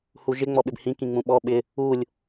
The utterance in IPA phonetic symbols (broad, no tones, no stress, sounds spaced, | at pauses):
h u ʒ ɪ ŋ͡m ɔ ɓ ɪ b h ĩ k ĩ ŋ͡m ũ ɓ ɔ ɓ ɪ | u lʲ